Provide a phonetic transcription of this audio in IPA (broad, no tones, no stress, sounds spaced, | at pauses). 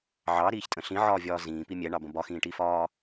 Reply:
ʕ ɑ ɾ iː ç tʼ ə̃ ɬ ĩ ʕ ɒː vʲ ɒː z ĩː p i mʲ ɛ ɳ ɑ b ə̃ b ɒ x ĩː ʈ i f ɒː